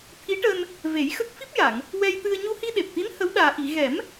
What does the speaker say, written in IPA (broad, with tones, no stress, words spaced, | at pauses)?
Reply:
t̪ʰi˧˥ʈəː˧n | ve˨˩˦jxə˦˥k̚ fi˦˥p̚ja˨˩˨ŋ | wɛ˧jt̪ɨ˧ə̯ ɲu˧hi˧ɗe˨˩p̚t̪i˧˥n hə˧˥wɗaː˨˩ ʔi˨˩˨ɣɛ˨˩˦m